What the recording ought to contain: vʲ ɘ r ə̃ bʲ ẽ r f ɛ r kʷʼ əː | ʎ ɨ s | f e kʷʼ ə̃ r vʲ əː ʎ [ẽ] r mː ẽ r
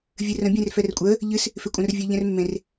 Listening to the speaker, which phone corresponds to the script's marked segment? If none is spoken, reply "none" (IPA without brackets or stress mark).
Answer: ɛ̃